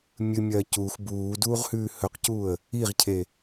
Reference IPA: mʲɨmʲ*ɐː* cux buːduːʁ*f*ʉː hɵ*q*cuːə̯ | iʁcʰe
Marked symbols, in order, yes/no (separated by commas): yes, no, yes